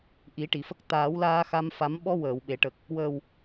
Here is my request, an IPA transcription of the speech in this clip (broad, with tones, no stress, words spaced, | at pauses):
ʔi˨˩˦ʈi˨˩˨fə˦˥k̚ t̪aː˨˩˦wlaː˧xa˧mfa˨˩˦m ɓɔ˧ wəː˨˩˨wɓe˨˩˨ʈə˨˩k̚ | wəː˨˩w